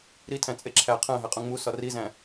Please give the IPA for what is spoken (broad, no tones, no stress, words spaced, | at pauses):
ɾitʰæ̃ t͡sʼeǁʰæ qʰæ̃ɦæqʼũ ŋ͡mu sɒrizæ̃